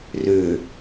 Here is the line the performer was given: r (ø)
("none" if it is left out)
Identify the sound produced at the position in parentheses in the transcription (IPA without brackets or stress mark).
ø